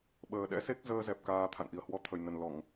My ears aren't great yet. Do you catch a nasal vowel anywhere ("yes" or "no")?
no